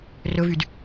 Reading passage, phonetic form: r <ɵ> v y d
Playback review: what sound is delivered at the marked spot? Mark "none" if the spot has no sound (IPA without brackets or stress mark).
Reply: ɵ